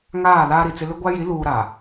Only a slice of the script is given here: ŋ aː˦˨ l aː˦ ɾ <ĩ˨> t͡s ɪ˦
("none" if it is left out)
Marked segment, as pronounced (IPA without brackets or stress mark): i˨